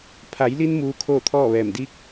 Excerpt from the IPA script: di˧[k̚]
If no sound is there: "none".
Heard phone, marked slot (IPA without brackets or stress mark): k̚